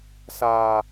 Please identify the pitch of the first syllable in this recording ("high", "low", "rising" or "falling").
low